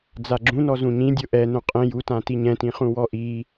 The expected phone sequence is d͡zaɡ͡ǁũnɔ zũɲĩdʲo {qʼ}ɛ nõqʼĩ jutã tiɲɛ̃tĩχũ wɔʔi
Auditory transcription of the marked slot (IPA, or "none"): ʔ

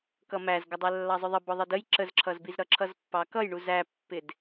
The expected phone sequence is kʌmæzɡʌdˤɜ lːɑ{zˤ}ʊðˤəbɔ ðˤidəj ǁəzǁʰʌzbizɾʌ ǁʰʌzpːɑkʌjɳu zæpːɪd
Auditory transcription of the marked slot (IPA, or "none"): zˤ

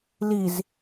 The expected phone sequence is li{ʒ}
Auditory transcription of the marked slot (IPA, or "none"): z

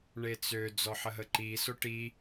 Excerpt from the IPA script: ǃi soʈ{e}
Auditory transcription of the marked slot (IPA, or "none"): i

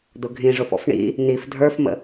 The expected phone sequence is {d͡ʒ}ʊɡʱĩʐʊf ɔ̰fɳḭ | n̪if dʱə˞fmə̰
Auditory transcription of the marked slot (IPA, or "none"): d̪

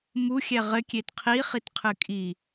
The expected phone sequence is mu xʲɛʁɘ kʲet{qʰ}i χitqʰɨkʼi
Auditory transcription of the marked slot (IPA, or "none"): qʰ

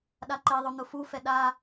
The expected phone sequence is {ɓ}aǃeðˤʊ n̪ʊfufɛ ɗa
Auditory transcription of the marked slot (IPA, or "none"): ɗ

